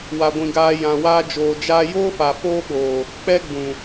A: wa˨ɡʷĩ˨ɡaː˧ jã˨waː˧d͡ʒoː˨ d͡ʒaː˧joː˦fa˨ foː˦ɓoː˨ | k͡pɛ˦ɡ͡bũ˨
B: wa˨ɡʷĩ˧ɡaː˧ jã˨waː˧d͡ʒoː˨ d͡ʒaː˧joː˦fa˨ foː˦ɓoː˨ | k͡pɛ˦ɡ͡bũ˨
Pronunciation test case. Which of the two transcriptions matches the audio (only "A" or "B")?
A